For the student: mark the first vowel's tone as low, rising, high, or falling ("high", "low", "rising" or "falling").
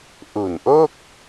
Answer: low